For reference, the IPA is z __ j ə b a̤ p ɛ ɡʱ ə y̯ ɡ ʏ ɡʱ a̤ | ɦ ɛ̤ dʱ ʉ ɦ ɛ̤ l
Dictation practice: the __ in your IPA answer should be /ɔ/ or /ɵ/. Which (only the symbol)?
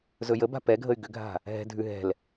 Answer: ɵ